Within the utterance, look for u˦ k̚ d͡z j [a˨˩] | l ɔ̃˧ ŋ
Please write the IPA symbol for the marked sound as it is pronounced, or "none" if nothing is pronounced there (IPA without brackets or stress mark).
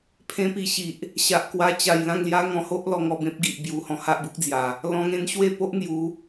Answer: a˨˩